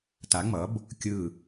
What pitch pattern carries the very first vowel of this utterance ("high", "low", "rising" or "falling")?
rising